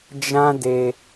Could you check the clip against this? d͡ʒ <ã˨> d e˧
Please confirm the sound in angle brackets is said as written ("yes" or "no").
no